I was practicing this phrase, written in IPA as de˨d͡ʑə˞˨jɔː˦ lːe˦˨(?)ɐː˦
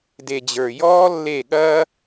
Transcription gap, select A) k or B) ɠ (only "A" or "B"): B